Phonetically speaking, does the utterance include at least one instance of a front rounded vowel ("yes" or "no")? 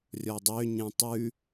yes